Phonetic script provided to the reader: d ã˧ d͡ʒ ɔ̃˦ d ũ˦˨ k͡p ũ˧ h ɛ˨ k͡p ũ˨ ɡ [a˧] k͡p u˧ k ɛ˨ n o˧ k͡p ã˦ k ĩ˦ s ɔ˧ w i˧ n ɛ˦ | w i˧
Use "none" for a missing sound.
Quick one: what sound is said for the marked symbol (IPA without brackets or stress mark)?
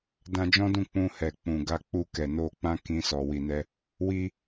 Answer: a˧